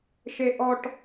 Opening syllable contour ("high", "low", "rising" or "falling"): high